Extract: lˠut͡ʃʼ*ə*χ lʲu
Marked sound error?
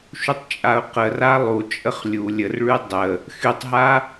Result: no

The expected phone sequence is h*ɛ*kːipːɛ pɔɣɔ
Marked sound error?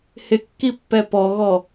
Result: yes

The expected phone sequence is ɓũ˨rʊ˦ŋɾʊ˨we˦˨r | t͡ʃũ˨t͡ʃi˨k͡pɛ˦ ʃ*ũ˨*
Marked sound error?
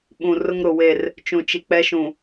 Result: no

